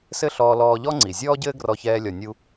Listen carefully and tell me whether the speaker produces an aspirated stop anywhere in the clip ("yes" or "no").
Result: no